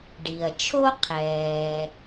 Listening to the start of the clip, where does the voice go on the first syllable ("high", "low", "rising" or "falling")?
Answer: low